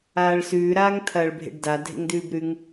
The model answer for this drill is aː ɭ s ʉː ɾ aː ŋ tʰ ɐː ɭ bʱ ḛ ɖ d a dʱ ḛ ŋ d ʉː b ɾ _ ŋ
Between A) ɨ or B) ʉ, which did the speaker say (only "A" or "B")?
B